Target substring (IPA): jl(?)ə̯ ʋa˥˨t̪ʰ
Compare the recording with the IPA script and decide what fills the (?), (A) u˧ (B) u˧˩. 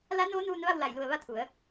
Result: B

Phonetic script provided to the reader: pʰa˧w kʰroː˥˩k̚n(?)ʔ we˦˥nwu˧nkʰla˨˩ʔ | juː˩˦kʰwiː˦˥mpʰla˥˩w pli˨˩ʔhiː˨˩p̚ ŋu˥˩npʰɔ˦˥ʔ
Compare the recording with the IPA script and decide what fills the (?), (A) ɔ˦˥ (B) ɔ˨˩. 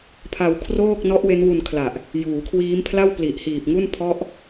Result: A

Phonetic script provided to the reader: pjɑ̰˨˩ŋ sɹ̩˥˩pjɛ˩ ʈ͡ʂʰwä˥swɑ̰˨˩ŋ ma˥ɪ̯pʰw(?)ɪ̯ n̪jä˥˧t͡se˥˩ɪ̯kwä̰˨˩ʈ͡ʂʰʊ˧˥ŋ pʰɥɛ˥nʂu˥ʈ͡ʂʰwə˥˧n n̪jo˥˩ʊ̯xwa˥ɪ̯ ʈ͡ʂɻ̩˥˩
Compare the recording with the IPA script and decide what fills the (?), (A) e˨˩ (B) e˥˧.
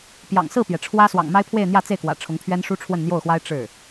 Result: B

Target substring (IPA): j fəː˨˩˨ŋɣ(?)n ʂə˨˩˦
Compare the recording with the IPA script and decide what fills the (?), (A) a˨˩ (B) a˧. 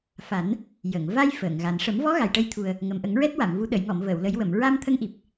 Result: A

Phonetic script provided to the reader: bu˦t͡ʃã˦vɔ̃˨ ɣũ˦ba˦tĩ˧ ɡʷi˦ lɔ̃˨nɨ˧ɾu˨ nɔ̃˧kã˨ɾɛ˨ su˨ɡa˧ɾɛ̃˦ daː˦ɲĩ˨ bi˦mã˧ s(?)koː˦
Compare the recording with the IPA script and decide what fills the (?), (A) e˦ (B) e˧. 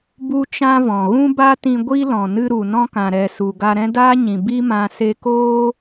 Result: B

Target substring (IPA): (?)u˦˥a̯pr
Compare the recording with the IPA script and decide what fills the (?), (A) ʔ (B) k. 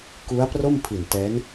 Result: B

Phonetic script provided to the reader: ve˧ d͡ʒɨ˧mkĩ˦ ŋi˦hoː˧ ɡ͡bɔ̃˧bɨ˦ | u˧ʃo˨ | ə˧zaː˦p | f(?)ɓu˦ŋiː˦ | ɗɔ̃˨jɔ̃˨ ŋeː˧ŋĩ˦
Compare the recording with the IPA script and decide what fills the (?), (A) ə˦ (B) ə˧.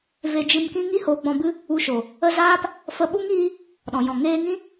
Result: B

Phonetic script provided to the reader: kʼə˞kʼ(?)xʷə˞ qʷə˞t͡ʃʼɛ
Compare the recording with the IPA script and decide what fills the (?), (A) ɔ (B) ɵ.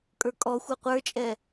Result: A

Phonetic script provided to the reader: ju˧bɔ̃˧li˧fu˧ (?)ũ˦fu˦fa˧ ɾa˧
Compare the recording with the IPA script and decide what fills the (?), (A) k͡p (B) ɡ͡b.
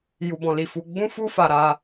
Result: B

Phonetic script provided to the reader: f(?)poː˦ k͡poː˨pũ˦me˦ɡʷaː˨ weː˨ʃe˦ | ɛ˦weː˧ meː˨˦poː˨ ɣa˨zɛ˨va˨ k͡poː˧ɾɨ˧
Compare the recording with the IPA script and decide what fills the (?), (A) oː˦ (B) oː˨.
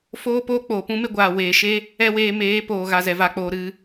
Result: A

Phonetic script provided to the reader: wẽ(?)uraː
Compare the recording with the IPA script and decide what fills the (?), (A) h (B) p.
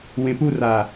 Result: B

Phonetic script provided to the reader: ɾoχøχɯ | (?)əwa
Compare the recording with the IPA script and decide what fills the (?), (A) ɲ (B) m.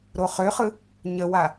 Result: A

